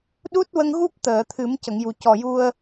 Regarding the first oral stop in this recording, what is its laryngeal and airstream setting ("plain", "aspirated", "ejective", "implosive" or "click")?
implosive